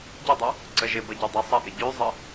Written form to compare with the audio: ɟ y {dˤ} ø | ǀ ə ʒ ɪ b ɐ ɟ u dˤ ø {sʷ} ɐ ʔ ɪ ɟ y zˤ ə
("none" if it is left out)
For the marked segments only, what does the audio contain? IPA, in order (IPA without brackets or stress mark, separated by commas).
dˤ, sˤ